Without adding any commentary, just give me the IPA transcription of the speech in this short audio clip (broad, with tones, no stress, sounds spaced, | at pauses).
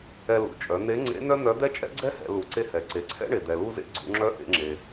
ɛ˧ l ṵ˩ t͡ʃʼ œ˩˧ n̪ e˧˥ ŋ͡ǀ ḛ˧˥ n œ˥ n̪ œ˧˥ d̪ ɛ˥ t͡ʃʼ ɛ̰˥ ɡ͡ǀ ɛ˥ h ɛ̰˩˧ l u˩˧ ǀ e˧ h ɛ˩ ǀ e˩˧ ǀʰ ɛ̰˥ ɳ e˩ d̪ ɛ˩ l u˧ z ḛ˧ ɡ͡ǀ ṵ˩˧ ŋ͡ǁ œ˧˥ ʔ ḛ˩˧ ŋ͡ǁ e˩